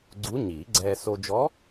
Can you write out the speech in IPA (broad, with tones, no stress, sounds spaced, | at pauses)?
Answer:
ɡ͡ǀ u˧˥ ɲ iː˨˩˦ ɡ͡ǀ ɛː˧ s o˧ d͡ʒ ɔ˧˥